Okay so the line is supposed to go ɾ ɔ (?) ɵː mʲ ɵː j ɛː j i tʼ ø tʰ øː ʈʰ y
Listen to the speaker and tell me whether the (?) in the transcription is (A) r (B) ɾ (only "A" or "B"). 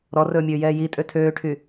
A